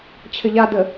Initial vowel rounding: unrounded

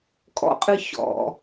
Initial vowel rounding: rounded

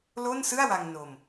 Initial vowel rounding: rounded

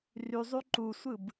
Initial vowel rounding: rounded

